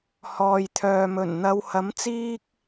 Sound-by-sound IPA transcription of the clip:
hɔː˨jt̪ʰœː˨mɵ˨˩nn̪ɐ˨˧w hɐ˨˥mt͡siː˥k̚

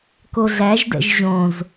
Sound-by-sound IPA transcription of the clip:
koɮæʒdɛ̰ʒ ʑõz

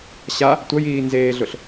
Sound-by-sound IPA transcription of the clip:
ɕa | tʷɐjiː nzeːɮʊɬ

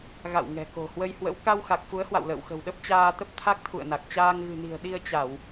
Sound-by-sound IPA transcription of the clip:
ɣa̰˧˨w ŋɛ̤˨˩ko̤˨˩hwə˧jhwə̰˧˥w ka˧wxa˨˩k̚ fu˨˦ə̯hwa̰˧˨w lə̰ː˧˨wxə̤˨˩wɗə˦˥p̚ t͡ɕaː˧t̪ə˦˥p̚ t̪ʰa˦˥k̚t̪ʰṵ˧˨ə̯na˨˩k̚t͡ɕaː˧ŋ ɣɨ̤˨˩ni̤˨˩ə̯ ɗi˧ə̯t͡ɕa˧˩˨w

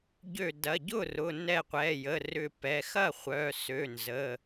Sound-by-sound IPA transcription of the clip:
ɟø˧˩ dɐ˩˧˩ɟʊ˥˩rʊ˩˧˩ nɛ˧˩qʷɛ˩˧˩jə˩˧˩ rʏ˧˩pɛ˩˧˩ xɐ˥˩χʷœ˩˧˩ sø˩˧˩nzə˩˧˩

